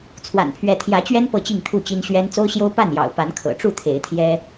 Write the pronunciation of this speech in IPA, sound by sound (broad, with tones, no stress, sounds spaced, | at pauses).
t͡sʰ w a̰˨˩ n pʰ ɥ ɛ˨˦ t̪ʰ j ä˨˦ t͡ɕ ɥ ɛ˦ n p ɤ˥˨ t͡ɕ i˥˨ ŋ t̪ʰ u˥˨ t͡ɕ i˦ n ɕ ɥ ɛ˦ n t͡s o˦ ʊ̯ ɕ j o˦ ʊ̯ p a˥˨ n j ɑ̰˨˩ ʊ̯ p a˨˦ n kʰ ɤ̰˨˩ ʈ͡ʂ u˥˨ t̪ʰ e˨˦ ɪ̯ t̪ʰ j ɛ˦